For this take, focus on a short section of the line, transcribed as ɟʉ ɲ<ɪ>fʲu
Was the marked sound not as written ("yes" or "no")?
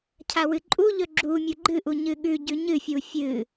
yes